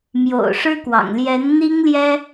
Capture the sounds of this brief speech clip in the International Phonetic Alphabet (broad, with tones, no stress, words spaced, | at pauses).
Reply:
mjo̰˨˩ʊ̯ʂɻ̩˥kwɑ̰˨˩ŋ ljɛ˧˥nn̪i˥ŋljɛ˥